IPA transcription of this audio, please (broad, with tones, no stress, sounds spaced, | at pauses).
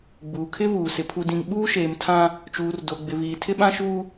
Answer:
ɡ͡b uː˨ kʰ ɪ˦ β uː˨ s ɪ˨ pʰ u˨ d ĩ˨ ŋ ɓ uː˦ ʃ eː˨ m tʰ ã˦ | t͡ʃ uː˨ r d o˨ ɡ͡b ɪ˨ β iː˨ tʰ ɪ˦ ɓ ã˦ ʃ uː˦